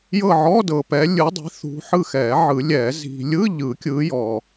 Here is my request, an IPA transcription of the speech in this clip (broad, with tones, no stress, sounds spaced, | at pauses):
j ɤ˦˨ ʕ ɔ˧˥˧ d ɤ˨ p ɛ˨˦ lʲ ɯ˨˦ dˤ i̤˨˦ θ ṳ˨˦ ħ ɯ˦˨ x ɛ˨˩˦ ʕ ɯ˨˩˦ lʲ ɛ˨˩˦ z i̤˨ lʲ ɯ˧˥˧ ʎ ɯ˨˩˦ kʲ ɯ˨˦ j ɔ˨